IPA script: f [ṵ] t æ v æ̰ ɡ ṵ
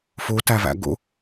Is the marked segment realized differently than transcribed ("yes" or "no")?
yes